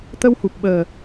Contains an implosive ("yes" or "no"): yes